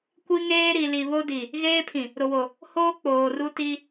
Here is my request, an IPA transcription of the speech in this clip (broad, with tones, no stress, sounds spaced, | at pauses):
kʷ i˦ ŋ eː˦ ɾ i˨ l i˨ β o˦ d i˨ | ɣ eː˦ pʰ ĩ˨ | ɾ ʊ˨ w o˨ | h oː˦ k͡p oː˨ r u˦ t i˦